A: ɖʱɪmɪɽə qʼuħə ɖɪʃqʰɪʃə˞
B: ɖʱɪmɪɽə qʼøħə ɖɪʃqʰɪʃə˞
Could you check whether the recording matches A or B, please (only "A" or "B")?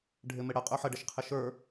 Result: B